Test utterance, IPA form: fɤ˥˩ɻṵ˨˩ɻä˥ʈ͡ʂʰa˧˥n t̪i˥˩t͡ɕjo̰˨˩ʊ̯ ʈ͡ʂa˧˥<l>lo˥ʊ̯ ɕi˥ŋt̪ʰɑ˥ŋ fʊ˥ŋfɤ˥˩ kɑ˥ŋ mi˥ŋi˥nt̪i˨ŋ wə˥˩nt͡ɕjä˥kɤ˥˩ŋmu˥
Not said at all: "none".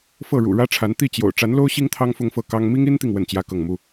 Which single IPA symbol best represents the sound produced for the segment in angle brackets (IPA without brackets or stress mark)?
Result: n